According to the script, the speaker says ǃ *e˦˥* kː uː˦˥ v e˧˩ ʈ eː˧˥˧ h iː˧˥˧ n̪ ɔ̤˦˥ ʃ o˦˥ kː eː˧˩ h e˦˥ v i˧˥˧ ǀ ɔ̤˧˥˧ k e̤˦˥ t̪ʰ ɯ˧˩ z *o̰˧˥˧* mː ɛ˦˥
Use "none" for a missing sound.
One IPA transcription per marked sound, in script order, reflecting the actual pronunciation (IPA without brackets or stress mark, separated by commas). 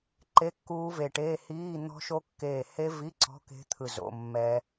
e˧˥˧, o̰˧˥˧